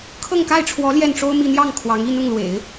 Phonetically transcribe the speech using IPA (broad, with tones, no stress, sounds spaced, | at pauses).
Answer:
kʰ ɤ˥˧ ŋ k a˥˩ ɪ̯ ʈ͡ʂʰ w ɔ˧˥ l j ɛ˥˩ n ʈ͡ʂ o˥ ʊ̯ m i˥˧ n̪ j ɑ˥˩ ŋ kʰ w ɑ˧˥ ŋ i˥ n ʊ˥˩ ŋ l w ḛ˨˩˦ ɪ̯